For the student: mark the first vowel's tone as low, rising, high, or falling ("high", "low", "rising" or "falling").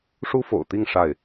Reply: high